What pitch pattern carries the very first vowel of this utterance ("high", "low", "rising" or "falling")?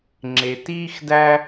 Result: low